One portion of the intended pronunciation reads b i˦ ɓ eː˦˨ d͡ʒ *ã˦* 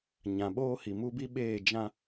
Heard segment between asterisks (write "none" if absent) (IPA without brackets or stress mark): ã˦